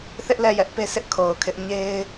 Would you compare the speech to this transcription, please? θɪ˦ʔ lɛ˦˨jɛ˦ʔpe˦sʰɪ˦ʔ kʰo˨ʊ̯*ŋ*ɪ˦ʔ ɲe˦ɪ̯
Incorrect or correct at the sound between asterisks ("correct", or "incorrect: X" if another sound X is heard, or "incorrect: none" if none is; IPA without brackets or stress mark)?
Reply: incorrect: kʰ